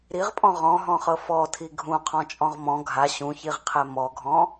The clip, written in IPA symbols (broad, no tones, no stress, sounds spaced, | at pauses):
ɾ i ʁ pʼ ɔ̃ ʁ ɔ̃ ɦ ɔ̃ χ ɤ f ɔ tʰ i ɡʱ ũ qʰ ɔ̃ t͡ʃʼ ɔ̃ ʁ m ɔ̃ ɡʱ a ɕ ũ ç i ʁ qʰ ɛ m ɔ ɡʱ ɔ̃